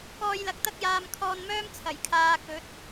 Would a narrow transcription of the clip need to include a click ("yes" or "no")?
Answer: no